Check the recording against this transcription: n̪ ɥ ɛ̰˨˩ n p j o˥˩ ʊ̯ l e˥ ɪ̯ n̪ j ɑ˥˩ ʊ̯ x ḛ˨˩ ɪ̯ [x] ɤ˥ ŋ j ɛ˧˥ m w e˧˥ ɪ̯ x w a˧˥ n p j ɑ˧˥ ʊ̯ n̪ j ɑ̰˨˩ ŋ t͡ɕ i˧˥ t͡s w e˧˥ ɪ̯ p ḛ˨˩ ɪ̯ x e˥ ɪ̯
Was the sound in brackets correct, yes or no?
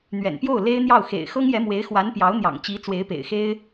yes